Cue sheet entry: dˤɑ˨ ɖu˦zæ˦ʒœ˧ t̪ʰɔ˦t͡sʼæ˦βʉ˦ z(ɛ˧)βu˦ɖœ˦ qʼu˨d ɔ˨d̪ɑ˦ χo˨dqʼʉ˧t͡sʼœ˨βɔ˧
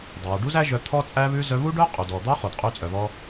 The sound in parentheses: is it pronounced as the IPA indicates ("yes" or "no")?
no